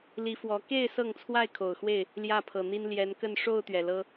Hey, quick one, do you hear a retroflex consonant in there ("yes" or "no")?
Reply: yes